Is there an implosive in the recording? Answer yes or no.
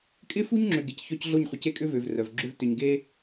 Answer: no